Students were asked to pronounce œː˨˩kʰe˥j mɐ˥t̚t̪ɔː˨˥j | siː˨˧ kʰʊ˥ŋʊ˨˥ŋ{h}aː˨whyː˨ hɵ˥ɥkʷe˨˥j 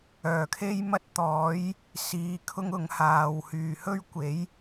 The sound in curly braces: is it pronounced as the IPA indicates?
yes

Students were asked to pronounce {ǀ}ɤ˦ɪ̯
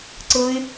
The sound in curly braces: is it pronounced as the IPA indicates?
yes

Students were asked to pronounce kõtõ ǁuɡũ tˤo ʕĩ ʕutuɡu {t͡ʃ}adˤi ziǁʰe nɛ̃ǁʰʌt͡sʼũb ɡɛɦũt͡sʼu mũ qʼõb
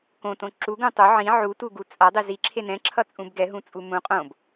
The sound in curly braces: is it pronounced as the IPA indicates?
no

